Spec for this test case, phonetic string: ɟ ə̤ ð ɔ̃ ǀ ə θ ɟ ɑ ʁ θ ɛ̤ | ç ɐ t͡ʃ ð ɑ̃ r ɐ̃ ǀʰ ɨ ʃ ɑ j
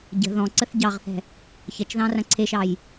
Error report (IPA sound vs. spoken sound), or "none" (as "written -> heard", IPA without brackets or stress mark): ɨ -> e